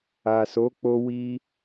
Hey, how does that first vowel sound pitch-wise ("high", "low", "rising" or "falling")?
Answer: low